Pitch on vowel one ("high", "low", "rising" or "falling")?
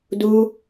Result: high